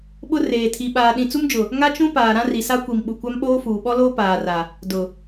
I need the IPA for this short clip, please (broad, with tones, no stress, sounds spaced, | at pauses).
ɓ ʊ˦ r eː˨ tʰ i˨ ɓ aː˨ ɗ ĩ˨ t͡s u˦ m d͡ʒ ʊ˨ | ŋ a˦ t͡ʃ ũ˦ p aː˨ ɾ ã˦ r i˨ s a˦ kʷ i˨ m ɓ u˨ kʷ a˦ m ɓ oː˦ f uː˨ ɓ ɔ˦ l oː˦ p aː˨ r a˨ | d ʊ˨